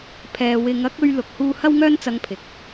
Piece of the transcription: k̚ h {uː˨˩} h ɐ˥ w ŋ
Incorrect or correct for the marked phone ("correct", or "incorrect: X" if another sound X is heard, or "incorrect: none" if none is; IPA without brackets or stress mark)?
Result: incorrect: uː˧